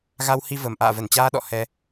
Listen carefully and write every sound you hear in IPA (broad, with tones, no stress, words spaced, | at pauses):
ɣa˧whi˧və˨˩m ʔa̰ː˧˨və˧˩nt͡ɕaː˧ɗɔ̰˧˨ hɛ˧